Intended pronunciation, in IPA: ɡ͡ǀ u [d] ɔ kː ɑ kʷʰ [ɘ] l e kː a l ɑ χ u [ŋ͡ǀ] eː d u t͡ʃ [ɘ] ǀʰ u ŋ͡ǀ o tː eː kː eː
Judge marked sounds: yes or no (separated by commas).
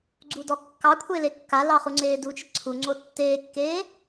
yes, no, yes, yes